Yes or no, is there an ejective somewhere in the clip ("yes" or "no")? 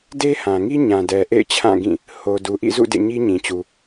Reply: no